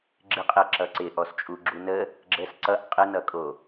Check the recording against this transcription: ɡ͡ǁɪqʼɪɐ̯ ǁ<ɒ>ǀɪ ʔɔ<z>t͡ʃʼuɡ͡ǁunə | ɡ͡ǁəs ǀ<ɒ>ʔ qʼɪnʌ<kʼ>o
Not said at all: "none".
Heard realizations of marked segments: ʌ, s, ʌ, kʼ

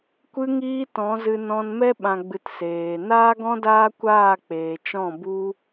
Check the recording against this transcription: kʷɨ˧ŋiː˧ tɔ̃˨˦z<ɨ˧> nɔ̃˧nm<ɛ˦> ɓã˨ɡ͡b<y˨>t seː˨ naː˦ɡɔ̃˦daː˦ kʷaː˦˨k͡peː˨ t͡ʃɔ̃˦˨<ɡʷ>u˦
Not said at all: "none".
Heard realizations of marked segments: ɨ˧, ɛ˦, ɨ˨, b

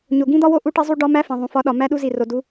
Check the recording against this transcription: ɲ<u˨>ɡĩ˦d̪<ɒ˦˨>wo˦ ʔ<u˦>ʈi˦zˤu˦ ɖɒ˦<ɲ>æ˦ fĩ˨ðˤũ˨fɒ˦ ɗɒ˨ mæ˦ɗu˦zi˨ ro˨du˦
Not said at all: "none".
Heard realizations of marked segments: o˨, ɒ˦, u˦, m

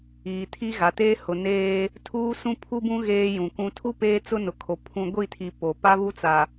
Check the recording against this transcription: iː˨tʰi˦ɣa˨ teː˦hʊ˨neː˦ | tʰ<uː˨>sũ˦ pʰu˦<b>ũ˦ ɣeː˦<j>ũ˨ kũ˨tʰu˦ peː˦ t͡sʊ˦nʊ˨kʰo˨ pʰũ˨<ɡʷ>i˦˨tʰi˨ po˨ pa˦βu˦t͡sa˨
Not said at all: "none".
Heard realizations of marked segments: uː˦, b, j, ɡʷ

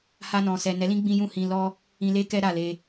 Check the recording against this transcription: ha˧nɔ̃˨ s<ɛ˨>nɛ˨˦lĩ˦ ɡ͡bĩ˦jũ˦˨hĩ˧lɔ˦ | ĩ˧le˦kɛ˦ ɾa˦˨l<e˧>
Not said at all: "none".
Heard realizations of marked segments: ɛ˨, e˧

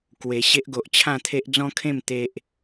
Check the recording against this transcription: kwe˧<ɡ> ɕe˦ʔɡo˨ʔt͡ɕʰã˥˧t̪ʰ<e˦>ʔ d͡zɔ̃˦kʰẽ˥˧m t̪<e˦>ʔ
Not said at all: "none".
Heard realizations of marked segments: none, e˦, e˦

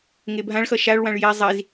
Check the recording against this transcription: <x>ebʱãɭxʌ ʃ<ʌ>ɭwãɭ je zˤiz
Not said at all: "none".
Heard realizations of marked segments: ŋ, a

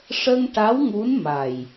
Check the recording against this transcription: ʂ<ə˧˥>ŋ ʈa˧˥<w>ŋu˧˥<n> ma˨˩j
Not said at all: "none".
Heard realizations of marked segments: ə˧, w, n

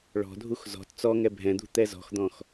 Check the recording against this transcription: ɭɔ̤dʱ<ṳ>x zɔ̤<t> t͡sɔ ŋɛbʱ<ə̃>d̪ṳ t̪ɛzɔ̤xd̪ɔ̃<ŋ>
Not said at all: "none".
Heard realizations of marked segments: u, t, ɛ̃, x

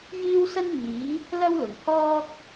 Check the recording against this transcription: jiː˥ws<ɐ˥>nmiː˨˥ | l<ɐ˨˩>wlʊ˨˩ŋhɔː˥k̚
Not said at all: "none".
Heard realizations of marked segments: ɐ˥, ɐ˥

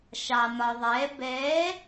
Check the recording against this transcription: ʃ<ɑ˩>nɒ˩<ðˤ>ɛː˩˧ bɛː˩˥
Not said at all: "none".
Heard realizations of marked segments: ɑ˩, ðˤ

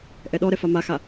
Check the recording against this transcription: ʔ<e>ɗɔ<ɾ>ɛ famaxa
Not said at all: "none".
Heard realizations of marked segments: ɛ, ɾ

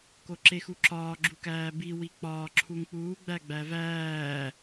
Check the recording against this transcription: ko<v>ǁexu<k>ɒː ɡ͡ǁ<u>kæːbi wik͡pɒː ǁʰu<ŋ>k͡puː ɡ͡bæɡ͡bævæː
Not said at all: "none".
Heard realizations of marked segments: none, ǁ, u, ŋ

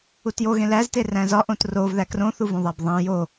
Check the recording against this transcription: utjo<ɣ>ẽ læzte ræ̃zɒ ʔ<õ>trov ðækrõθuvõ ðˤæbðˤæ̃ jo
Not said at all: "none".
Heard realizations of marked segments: ɣ, õ

